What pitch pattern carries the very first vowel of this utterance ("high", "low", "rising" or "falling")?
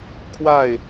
falling